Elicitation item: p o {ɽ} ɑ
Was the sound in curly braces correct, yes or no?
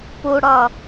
yes